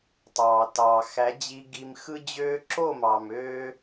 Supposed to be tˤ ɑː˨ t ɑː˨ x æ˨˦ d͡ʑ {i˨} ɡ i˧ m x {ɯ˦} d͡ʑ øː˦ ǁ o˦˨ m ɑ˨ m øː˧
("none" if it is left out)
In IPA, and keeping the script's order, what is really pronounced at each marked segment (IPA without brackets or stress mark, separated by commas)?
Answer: i˧, ɯ˦